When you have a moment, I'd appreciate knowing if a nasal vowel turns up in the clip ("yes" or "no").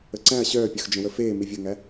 yes